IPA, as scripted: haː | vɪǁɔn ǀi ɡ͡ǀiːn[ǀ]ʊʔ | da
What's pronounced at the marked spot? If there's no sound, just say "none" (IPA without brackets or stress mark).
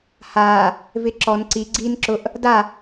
ǁ